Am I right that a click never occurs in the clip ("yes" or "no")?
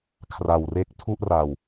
yes